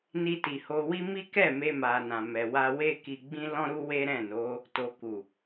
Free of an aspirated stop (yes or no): yes